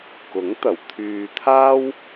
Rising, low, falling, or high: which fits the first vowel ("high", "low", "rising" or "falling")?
rising